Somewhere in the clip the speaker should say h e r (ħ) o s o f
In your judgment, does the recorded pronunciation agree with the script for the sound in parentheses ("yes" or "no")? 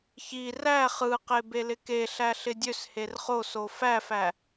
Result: no